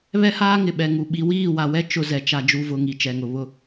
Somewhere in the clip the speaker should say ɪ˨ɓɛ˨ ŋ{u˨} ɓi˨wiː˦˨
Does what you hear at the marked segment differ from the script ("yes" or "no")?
no